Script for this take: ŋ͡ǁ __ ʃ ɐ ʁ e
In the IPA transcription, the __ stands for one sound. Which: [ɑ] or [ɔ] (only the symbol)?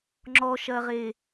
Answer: ɔ